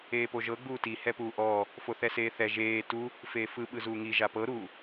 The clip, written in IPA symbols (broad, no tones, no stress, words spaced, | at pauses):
eːpoʒɤ ɡ͡buːti hɛpuːʔɔː | foθɛseːθɛ ʒeː tu | feːfɯ ɓɯzuːŋi ʒapɤ ɾu